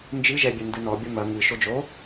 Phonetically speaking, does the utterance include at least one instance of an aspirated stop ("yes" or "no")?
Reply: no